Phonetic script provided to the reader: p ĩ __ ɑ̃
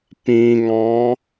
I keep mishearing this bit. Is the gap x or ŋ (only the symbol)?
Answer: ŋ